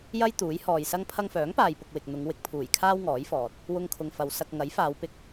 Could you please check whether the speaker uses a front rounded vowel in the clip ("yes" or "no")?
yes